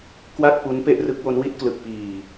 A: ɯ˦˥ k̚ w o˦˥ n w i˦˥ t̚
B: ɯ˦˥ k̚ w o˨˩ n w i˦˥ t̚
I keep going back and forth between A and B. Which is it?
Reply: A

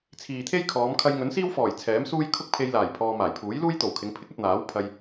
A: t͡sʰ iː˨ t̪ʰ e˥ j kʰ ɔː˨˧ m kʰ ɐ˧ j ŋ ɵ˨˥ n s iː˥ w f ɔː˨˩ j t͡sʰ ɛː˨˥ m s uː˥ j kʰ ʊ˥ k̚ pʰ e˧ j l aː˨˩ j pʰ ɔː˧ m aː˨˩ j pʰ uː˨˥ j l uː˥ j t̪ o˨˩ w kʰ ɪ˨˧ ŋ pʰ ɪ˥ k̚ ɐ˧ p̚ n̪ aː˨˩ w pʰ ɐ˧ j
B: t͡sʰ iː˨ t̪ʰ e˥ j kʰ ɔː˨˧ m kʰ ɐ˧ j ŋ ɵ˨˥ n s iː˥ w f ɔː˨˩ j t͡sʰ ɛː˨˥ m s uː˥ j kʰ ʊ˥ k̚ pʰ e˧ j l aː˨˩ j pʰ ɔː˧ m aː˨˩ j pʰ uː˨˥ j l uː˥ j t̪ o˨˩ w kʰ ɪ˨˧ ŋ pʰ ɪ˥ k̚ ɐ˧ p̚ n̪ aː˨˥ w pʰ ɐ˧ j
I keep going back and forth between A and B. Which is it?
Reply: B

